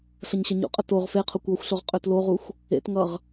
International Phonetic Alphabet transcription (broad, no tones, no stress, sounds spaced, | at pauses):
ɬ ʌ ɲ ɕ ɐ ɲ ṵ qʼ ə t o ʁ f e qʰ o kʷ ɔ xʷ ɬ o ʁ qʼ ø t l o ʁ u xʷ | ḛ t ŋ ʌ ʁ